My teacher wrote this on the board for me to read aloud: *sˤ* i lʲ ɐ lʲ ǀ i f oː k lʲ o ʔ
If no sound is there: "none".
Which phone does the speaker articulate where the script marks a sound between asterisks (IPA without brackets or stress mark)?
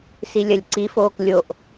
s